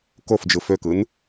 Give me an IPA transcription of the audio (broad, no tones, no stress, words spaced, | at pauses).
kofd͡ʒɯ føkɯn